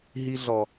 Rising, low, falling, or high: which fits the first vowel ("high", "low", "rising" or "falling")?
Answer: high